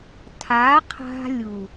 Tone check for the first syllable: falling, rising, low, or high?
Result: rising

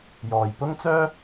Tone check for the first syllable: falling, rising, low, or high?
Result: low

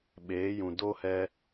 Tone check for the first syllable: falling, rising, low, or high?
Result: rising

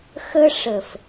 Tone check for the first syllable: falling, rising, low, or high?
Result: high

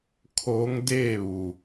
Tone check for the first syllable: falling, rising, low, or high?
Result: rising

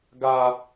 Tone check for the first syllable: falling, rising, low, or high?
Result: high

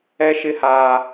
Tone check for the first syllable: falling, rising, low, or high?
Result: high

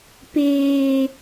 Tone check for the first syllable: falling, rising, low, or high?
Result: high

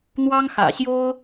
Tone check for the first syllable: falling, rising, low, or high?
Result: high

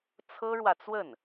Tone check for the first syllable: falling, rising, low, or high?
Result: high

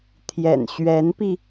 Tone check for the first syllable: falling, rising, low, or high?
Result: low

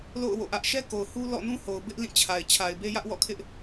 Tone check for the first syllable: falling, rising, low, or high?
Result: falling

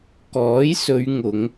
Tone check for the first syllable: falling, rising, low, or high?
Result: rising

